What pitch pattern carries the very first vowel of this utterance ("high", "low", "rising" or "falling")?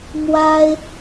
high